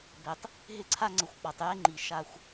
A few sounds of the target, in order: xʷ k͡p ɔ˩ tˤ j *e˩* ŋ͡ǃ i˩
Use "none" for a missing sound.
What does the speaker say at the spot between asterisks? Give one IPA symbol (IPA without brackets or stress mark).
e˦